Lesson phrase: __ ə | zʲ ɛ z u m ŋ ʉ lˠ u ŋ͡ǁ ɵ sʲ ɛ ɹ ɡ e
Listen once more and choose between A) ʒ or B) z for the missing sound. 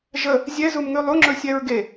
A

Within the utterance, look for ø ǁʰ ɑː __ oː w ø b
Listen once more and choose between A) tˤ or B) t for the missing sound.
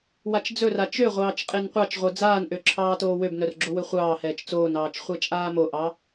B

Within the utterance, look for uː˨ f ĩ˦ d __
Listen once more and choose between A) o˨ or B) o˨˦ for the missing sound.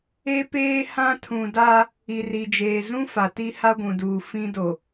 A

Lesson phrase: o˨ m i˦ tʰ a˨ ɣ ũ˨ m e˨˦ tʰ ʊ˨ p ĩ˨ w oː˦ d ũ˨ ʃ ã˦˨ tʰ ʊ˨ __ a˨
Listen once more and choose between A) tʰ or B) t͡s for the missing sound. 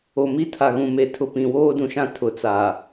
B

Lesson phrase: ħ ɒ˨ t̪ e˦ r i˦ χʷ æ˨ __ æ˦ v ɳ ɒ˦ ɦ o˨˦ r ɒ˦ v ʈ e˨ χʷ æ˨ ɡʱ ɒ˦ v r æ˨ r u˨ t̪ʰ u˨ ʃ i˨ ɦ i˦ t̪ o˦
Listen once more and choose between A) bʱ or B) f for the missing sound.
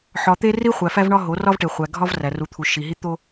B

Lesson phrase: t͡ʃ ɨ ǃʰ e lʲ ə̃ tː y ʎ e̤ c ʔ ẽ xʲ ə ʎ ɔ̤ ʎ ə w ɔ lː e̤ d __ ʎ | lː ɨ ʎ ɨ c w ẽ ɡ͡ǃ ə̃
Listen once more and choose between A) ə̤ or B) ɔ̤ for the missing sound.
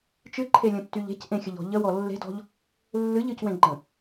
B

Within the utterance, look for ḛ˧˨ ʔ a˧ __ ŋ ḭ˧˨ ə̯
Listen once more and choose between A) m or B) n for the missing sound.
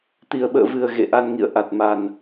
B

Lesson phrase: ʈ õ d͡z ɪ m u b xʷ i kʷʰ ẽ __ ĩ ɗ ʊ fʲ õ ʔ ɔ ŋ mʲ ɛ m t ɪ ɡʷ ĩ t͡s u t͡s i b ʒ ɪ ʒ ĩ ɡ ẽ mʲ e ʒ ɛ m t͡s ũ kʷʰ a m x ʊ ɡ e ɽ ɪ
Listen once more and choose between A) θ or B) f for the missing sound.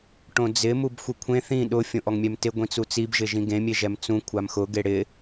A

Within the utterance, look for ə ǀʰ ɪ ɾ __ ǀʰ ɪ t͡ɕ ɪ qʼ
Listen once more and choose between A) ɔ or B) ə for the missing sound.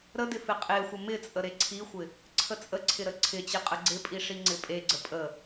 B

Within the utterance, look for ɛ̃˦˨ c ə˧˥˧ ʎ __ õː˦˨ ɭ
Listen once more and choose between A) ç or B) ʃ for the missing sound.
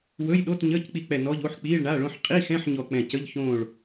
A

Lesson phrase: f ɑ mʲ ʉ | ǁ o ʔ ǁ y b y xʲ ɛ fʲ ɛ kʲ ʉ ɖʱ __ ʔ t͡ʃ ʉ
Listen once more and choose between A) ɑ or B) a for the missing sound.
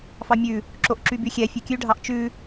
A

